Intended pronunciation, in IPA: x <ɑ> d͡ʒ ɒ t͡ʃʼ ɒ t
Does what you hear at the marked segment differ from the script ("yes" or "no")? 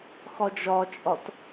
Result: yes